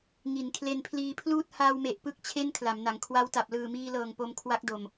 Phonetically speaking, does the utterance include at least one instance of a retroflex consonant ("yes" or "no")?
no